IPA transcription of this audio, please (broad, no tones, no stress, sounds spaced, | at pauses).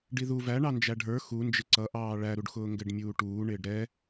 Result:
ɖ i ð u v æ ɳ ɑ n d͡ʒ æ ɖʱ ə˞ x u n d͡ʒ ɪ ǀ ʌ ʔ ɑː ɭ æ ɾ u ɖ x ʊː ŋ ɡ ɛ ɖ mʲ uː ʈ uː ɳ ɪː ɖ ɾ ɛ